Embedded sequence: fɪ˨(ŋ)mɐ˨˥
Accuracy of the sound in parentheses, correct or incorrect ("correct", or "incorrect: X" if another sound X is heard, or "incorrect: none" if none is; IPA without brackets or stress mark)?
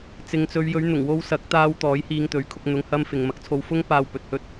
correct